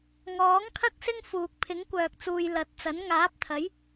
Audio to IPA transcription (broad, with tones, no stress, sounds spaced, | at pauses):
ŋ ɔː˨˥ ŋ kʰ ɐ˥ k̚ s ɪ˥ ŋ f uː˨ k̚ pʰ ɪ˨˥ ŋ kʷ œː˨ k̚ t͡s uː˨ j l ɐ˨˥ t̚ t͡s ɐ˨˥ n ŋ aː˨˥ p̚ t̪ʰ ɐ˨˥ j